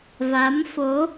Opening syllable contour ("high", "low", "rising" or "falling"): rising